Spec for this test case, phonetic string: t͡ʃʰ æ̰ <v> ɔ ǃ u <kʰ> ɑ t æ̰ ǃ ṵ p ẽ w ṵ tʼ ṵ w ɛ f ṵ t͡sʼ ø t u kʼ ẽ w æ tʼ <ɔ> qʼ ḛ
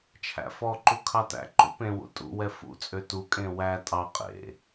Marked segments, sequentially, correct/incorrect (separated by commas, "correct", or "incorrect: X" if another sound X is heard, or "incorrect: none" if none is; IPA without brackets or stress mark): incorrect: f, correct, incorrect: ɑ